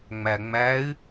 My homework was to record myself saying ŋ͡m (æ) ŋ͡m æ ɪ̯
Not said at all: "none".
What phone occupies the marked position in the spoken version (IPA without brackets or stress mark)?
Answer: æ